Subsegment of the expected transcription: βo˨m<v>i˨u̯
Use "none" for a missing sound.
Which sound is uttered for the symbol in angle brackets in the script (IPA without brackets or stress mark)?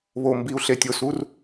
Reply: b